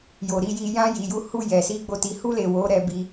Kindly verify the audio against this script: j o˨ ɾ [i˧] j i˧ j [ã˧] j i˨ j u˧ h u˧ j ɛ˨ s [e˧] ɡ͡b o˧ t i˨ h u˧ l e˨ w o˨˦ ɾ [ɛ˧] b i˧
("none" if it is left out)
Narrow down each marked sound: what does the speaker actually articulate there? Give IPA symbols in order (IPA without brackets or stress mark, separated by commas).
i˧, ã˧, i˧, ɛ˧